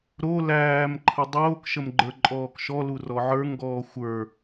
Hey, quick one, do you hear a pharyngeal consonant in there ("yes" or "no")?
yes